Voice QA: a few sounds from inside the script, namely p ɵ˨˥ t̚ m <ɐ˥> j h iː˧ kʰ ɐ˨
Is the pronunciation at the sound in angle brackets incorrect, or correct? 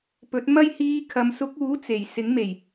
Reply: correct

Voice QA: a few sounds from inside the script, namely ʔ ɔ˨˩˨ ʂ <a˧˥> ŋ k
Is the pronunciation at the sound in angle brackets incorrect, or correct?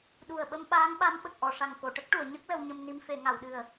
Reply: incorrect: a˨˩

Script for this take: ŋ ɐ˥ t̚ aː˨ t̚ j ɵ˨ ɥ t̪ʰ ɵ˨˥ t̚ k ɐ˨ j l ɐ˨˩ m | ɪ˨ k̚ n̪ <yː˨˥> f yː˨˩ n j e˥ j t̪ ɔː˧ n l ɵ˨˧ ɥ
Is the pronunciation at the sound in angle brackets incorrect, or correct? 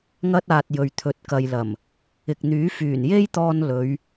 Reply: correct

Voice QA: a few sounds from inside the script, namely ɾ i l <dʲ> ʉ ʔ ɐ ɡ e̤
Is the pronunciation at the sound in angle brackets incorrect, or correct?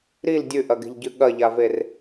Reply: correct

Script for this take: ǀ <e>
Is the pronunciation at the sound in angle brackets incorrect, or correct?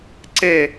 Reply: correct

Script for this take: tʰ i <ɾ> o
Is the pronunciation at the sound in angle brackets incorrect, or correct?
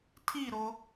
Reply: correct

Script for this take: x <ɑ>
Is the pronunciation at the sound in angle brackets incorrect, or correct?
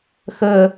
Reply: incorrect: ə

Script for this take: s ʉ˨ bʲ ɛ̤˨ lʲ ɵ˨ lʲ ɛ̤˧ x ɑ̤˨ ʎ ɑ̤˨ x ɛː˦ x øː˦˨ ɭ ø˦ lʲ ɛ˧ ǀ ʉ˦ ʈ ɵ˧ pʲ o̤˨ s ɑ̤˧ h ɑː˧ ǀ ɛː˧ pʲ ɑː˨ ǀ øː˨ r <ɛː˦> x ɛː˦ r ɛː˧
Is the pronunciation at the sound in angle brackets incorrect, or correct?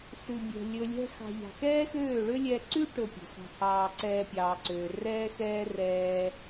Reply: correct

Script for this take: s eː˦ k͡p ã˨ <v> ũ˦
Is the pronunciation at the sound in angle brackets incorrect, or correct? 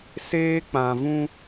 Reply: correct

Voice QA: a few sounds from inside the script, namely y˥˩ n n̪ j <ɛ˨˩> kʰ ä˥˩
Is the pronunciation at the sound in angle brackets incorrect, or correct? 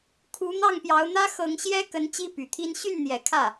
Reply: correct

